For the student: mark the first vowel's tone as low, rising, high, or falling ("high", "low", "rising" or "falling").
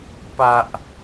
low